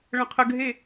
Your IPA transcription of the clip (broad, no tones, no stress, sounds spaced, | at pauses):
ɭ ə̃ qʰ ə ɡʱ e